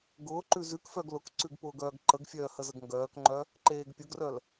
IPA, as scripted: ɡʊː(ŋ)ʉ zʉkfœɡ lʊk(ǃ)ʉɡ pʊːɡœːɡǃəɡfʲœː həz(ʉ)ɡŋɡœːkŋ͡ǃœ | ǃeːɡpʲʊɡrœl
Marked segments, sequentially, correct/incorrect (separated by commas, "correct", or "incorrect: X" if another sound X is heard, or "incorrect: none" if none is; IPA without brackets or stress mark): incorrect: ǃ, incorrect: ǀ, incorrect: ə